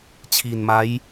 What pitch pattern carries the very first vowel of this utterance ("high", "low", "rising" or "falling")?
low